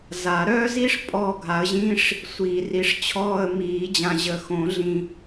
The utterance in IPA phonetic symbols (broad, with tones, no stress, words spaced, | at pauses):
za˨˩˦ɾœː˥zi˥ʂ pʼɔ˦˨ ɡʱa˨˥ə̯ʑĩ˧˥˧ʂ | sʷiː˨ ri˨˥ʂ t͡ɕʰɔː˦˨ə̯ miː˨˩˦d͡ʑã˨ʑə˨ xõ˨˩˦ɮĩ˨